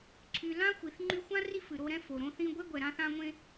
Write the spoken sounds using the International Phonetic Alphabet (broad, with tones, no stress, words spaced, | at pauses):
ǀʰy˨lã˥ xʷi˨θŋ͡ǃy˦xʷã˥ ri˦fɨ˩ ɾo˦ɾɛ̃˦ fo˩ɾõ˦ θĩ˦ ɡʷe˥ɡʷɛ˨ ɾã˦θã˦ŋʷẽ˦